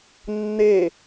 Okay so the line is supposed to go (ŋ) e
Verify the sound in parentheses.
incorrect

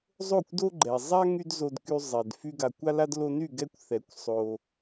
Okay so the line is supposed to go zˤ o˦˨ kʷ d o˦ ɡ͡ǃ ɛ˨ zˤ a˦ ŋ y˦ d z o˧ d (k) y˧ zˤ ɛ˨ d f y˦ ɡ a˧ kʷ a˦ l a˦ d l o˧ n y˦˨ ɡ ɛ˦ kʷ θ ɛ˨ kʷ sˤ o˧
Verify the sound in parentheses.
correct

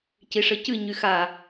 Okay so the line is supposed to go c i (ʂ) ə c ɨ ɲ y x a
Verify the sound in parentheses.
correct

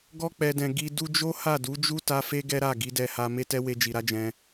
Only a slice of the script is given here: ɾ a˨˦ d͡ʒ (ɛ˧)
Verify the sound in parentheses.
incorrect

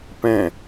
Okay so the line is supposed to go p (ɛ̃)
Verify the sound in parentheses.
correct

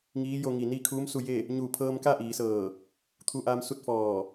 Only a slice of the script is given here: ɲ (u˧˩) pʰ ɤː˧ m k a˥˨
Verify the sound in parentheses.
incorrect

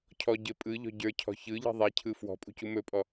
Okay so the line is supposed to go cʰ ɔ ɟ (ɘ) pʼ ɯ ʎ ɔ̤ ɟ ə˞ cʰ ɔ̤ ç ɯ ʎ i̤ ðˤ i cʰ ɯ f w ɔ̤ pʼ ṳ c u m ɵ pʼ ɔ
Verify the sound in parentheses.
correct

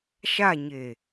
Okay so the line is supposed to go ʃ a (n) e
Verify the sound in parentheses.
incorrect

